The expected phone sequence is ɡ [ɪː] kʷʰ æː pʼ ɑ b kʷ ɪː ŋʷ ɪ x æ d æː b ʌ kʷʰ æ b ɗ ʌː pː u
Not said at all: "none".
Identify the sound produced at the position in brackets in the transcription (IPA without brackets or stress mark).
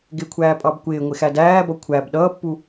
ɪ